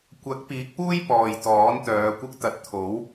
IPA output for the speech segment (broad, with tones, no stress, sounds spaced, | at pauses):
kʷ ɐ˨˥ k̚ p iː˨˥ k̚ p uː˥ j p ɔː˨ j t̪ ɔː˨˥ n t̪ œː˨˧ kʷ ɪ˥ k̚ t̪ ɐ˨˥ t̚ t̪ʰ o˨˥ w